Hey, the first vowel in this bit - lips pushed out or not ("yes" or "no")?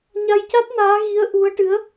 no